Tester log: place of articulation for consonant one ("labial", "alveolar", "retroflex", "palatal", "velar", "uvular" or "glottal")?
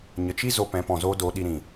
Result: palatal